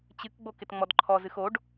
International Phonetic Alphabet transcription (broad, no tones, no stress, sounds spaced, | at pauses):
t͡ɕ ɨ k ɡ͡b o k ɪ t ŋ͡m ɔ d ǃʰ ɔ z ɨ x o ɖ